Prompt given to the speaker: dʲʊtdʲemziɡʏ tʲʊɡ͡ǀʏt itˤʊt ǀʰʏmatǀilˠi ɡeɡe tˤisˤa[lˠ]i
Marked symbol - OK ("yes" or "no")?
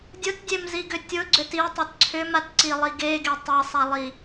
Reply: yes